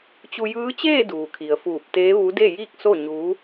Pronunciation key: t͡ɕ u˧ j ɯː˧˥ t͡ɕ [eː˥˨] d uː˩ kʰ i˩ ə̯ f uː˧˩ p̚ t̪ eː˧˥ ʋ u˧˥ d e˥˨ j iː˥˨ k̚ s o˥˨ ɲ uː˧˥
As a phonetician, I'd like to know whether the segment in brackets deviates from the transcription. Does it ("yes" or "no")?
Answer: no